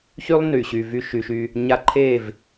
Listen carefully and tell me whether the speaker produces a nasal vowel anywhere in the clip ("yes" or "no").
no